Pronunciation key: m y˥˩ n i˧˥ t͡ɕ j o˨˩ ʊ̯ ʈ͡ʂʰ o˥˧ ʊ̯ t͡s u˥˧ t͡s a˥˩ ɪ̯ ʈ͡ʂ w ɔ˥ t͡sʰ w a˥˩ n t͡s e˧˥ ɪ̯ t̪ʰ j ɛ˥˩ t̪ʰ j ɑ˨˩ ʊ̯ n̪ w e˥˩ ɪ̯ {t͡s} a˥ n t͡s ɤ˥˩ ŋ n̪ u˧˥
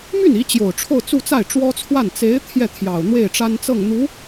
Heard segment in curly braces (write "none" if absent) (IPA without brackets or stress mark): ʈ͡ʂ